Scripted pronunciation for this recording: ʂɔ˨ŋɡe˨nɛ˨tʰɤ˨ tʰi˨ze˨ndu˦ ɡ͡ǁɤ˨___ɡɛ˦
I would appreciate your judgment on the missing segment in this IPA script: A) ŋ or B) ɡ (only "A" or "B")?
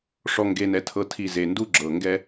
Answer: A